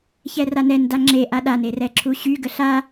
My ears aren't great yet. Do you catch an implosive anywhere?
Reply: yes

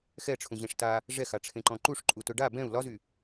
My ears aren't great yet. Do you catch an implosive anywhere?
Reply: no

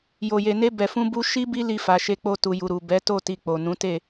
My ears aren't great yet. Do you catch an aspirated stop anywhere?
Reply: no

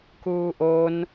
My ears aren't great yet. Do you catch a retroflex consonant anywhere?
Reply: no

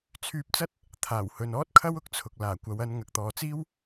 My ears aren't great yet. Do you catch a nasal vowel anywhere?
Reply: no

